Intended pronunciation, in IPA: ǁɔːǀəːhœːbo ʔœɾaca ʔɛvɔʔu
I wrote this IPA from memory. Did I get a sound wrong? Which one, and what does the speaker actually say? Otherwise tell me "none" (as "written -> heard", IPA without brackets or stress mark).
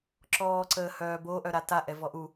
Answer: c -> t